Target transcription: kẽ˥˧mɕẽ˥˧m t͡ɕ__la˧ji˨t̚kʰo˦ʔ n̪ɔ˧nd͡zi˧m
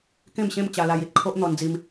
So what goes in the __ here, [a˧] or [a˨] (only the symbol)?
a˧